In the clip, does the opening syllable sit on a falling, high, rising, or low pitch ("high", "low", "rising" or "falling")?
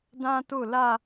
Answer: high